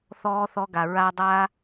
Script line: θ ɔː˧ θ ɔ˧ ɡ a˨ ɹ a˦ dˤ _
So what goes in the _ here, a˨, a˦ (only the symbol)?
a˦